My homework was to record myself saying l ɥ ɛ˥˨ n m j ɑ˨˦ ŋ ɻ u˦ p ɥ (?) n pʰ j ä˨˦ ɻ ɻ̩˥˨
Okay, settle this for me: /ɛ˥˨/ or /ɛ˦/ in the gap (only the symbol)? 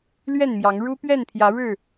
ɛ˥˨